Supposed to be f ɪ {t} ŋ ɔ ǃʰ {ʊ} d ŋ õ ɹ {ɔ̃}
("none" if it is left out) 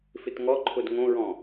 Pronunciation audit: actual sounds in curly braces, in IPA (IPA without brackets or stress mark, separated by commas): t, ʊ, ɔ̃